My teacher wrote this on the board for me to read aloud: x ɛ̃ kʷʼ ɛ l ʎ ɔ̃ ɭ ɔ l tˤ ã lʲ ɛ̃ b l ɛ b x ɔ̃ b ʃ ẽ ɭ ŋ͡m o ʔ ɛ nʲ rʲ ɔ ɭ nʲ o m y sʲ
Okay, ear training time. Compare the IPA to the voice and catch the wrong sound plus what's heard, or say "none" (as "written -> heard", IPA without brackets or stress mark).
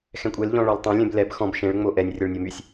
none